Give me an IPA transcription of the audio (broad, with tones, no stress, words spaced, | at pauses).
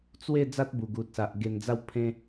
t͡swe˥˧ d͡za˦t̚bu˨˩ɡu˨t̚sa˨ʔ ɡe˨˩nd͡za˧w pʰẽ˧